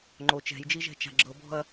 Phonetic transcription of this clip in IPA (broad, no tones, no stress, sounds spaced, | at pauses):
ŋ͡ǃ o t͡ʃ ɛ̤ j d͡ʒ i ʒ ɛ̤ t͡ʃ a̤ ɡ͡ǁ ɤ b ɔ̤ ɐ̯